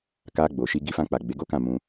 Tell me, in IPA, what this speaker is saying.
k a˧ ɡ͡b o˨ ʃ i˧ ɡ i˧ f ã˧ k͡p a˨ ɡ͡b e˨˦ ɡ o˦ k ã˦˨ m ũ˧

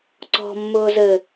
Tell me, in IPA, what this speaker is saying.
ǀ ɔ̤ mː ʊː z ɘ

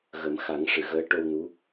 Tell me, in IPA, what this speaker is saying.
ɣ ə˨˩˦ m x a˨˩˦ ŋ ʂ ɨ˨˩˨ ɣ əː˧˥ ʈ o˧ w n u˧˥

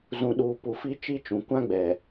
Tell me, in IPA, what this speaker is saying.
z ũ˨ ɗ uː˨ p u˨ f i˦ t͡ʃ i˦ t͡ʃ ũ˨ kʷ ã˦ ɡ͡b ɛ˨

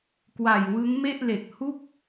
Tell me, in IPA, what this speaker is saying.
k w a˨˩ j w ɯ˦˥ ŋ m e˥˩ ʔ l e˨˩ k̚ h u˥˩ k̚

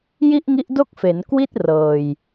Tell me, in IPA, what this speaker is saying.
j i˥˩ ʔ ŋ i˦˥ ʔ d o˥˩ k̚ f e˩˦ n k w i˥˩ t̚ r ɤː˧ j

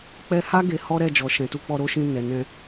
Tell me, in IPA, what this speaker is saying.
k͡p ɛ˧ h a˦ ɡ e˧ h ɔ˦ ɾ ɛ˦˨ d͡ʒ ɔ˨ ʃ ɛ̃˨ t u˧ k͡p ɔ˧ ɾ o˦ ʃ ĩ˧ n ɛ˨ n ɛ̃˧

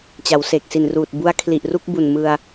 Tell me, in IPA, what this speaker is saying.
t͡ɕ a˩˦ w s eː˨˩ k̚ s i˨˩ n r uː˨˩ t̚ b u˦˥ a̯ kʰ l i˨˩ ʔ r u˥˩ k̚ b u˨˩ n m ɯ˧ a̯

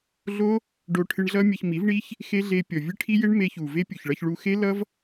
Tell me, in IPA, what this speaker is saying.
ɮ o˦ | ɖ o˦ ʈʰ ɨ˧ ɳ ɮ ʌ˦ mʲ ɐ˧ ç m i˨˦ v ɳ i˦ ç | x e˦ ɮ e˧ pʲ ɔ˨ vʲ ɨ˦ ʈʰ i˦ j e˦ ɳ m e˧ ç u˨ v e˦ pʲ u˨ ç ɭ ʌ˧ ç ɭ u˧ x e˦ l ʌ˦ v

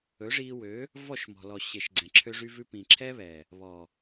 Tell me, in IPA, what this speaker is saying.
ɵ˨˦ ʐ iː˧ w ø˨˦ | v ɔ˦˨ ʃ m ɔ̤˨ l ɔ˨ ɕ e˨ ʃ ɡ͡ǀ ɛ̃˨ ǁʰ ø˧ ʐ y˧ v ʉ˧ p ĩ˨ ǁʰ ɛ˦ β ɛ˨ | β ɔ˨

